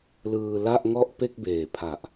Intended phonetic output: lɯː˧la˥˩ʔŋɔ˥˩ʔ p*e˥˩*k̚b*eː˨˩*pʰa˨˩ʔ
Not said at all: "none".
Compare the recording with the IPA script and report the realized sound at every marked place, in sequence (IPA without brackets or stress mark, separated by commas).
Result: e˥˩, eː˨˩